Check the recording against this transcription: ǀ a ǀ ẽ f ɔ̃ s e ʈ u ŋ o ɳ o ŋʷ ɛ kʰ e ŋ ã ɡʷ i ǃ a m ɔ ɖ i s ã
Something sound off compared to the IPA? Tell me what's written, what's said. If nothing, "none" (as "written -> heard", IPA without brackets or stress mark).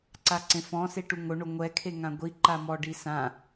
none